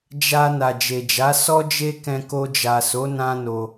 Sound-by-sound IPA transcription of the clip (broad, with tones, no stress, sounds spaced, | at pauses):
d͡ʒ a˧ n a˨ d͡ʒ e˨ d͡ʒ a˨˦ s ɔ˦ d͡ʒ e˦ k ɛ̃˧ k o˧ d͡ʒ a˨ s o˨˦ n ã˦ n o˧